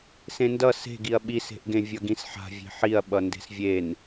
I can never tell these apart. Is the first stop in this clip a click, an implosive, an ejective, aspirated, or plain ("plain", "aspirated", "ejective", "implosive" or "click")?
plain